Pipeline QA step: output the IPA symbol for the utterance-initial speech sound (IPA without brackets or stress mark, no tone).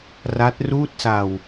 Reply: r